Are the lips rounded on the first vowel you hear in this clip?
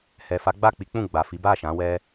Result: no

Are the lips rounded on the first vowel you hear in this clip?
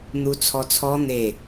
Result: yes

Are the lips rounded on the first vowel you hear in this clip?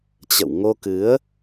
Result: no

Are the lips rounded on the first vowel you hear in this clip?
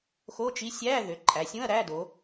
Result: yes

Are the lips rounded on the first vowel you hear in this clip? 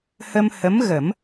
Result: no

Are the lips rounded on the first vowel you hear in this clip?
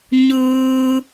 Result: yes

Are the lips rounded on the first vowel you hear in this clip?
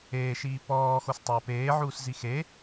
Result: no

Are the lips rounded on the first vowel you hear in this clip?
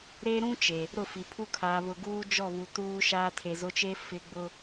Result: no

